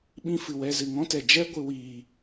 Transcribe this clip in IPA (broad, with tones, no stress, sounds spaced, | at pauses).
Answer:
ɓ ĩ˧ f ɨ˨ w ɛ˧ z ɨ˨ ŋ ɔ̃˦ t ɛ˨ d͡ʒ ɛ˦ ɡʷ ɨ˧ w iː˨